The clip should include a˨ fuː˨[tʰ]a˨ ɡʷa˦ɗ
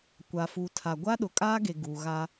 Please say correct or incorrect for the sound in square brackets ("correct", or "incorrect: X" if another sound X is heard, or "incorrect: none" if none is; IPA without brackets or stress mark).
correct